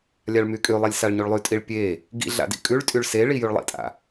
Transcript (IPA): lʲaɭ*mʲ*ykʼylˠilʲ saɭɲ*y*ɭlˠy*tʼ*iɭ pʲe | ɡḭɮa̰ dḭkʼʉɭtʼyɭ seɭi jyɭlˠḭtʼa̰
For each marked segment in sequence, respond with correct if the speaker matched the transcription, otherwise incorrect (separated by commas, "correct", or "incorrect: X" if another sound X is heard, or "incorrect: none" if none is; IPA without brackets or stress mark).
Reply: incorrect: m, correct, correct